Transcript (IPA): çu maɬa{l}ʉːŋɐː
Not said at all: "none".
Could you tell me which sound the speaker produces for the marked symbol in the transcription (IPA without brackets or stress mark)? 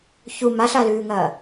l